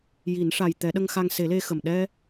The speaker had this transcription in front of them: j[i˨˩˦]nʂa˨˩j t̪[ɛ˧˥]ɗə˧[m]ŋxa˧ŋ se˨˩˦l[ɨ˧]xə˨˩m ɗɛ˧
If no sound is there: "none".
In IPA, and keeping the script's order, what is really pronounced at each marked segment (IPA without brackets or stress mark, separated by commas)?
i˨˩˦, ɛ˨˩˦, none, e˧